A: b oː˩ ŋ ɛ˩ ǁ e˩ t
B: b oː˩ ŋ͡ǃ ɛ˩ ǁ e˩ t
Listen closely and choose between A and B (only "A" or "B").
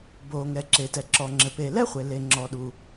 A